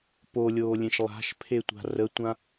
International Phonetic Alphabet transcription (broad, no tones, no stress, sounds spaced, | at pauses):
p o lʲ oː lʲ ẽ ʃ lˠ a̤ ʃ pʰ e tʷ a̤ r ə tʷ ã